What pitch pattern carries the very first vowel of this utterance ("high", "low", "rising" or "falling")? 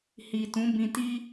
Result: low